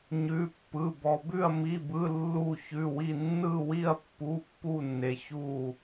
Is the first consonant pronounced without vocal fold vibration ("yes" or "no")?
no